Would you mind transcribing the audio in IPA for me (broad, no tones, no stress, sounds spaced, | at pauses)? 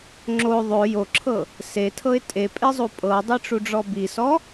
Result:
ŋ͡ǁ o ðˤ o j o ǁʰ ɤ | s e tʰ ɤ ɪ̯ tʼ e pʼ e zˤ u pʼ ɤ dˤ i ʈ͡ʂ u ɖ͡ʐ ɔ b i s ɔ